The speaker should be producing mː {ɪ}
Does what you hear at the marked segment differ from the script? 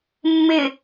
no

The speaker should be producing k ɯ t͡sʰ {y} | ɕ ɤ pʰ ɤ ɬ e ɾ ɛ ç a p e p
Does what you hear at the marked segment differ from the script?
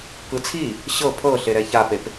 yes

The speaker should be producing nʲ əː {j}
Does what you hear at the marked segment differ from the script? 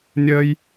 no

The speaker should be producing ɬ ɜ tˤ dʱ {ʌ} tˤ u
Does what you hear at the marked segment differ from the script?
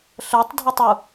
no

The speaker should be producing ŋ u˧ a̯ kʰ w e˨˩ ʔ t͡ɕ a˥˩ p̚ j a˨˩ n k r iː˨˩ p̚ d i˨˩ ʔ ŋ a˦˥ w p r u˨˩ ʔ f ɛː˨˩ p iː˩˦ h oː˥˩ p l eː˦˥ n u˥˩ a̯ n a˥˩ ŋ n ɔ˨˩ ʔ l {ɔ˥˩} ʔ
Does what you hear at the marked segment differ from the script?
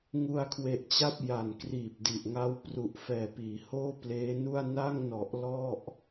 no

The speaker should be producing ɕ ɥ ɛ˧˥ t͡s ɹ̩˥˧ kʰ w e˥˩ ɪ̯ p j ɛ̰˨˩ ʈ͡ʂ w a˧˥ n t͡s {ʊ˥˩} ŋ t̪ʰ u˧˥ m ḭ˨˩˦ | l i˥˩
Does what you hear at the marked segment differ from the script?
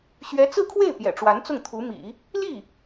no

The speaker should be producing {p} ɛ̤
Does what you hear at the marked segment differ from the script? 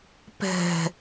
no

